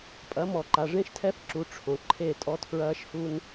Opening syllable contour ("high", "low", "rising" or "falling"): rising